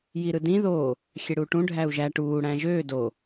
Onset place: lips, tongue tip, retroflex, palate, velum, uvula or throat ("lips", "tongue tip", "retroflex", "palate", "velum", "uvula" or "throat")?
palate